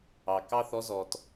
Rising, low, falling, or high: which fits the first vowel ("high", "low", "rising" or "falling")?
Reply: low